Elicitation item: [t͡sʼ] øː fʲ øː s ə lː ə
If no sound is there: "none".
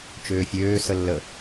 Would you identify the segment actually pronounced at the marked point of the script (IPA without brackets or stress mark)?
t͡ʃ